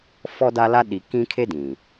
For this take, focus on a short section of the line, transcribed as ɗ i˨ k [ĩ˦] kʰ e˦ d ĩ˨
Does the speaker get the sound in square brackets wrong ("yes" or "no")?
no